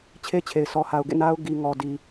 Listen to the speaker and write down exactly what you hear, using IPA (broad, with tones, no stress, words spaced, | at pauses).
t͡ɕʰe˦t͡ɕʰe˨ɪ̯sɔ˨ ha˨ʊ̯ɡḛ˦˨ na˦ʊ̯ ɡi˨ŋɔ˨ di˨